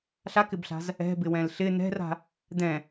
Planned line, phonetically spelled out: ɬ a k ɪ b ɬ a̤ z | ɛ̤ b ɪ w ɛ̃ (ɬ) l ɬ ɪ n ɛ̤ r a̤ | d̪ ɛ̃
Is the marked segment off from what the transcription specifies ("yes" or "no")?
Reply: yes